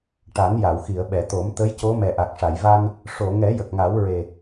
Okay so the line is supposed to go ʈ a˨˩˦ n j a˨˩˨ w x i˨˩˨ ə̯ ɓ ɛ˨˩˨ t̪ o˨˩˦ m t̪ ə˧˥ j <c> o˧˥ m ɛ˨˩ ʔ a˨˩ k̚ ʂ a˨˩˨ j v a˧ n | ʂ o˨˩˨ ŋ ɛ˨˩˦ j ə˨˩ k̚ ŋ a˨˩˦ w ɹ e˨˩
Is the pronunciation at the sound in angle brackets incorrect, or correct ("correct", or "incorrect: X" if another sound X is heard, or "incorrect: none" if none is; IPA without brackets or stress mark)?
correct